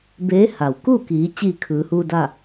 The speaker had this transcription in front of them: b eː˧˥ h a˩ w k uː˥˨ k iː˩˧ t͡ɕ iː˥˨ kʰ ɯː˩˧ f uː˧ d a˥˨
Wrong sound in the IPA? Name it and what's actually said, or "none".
f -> h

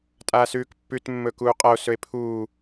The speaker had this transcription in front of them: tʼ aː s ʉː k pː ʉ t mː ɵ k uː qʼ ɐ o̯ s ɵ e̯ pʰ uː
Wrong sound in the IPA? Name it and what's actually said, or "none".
none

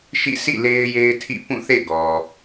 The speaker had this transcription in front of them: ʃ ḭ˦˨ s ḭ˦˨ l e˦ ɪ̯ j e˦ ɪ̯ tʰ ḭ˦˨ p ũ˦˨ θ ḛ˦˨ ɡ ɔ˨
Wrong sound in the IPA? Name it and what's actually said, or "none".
none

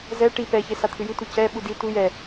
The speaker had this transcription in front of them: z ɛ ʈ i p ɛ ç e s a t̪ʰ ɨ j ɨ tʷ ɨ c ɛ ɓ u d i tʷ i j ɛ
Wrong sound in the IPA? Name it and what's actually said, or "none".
none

